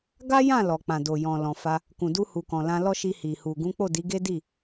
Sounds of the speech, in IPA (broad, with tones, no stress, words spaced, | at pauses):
ɡa˦jã˦˨ lɔ˨k͡pã˨do˨jɔ̃˨ lɔ̃˨fa˧ | kũ˨du˧hu˨kɔ̃˨ lã˧lɔ˦ ʃi˧hi˨hu˨ ɡũ˨˦k͡po˦˨ di˨˦ɡe˦ di˦˨